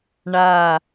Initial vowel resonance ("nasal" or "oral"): oral